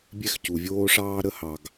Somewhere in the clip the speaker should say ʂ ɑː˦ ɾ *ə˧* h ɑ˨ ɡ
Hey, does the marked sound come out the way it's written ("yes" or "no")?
yes